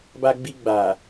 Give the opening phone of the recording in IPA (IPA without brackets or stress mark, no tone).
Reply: b